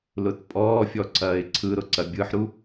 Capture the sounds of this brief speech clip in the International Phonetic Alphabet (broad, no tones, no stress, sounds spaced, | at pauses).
l ʊ t pʼ ɔː fʲ ɔ ǀʰ ɐː ɪ̯ ǀʰ ɯ ɾ ʊ ǀ ɐ bʲ ɯ ħ ɾ u